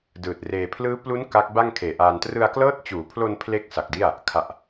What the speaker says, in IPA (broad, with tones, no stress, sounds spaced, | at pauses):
d ɯː˨˩ t̚ r eː˧ pʰ l ɯː˦˥ p l u˦˥ n k a˦˥ k̚ b a˥˩ ŋ kʰ eː˨˩ ʔ aː˧ n t r ɯ˧ a̯ k l ɤː˦˥ t̚ t͡ɕ uː˩˦ pʰ l o˧ n pʰ l e˥˩ k̚ s a˨˩ k̚ d i˥˩ a̯ | kʰ a˨˩ ʔ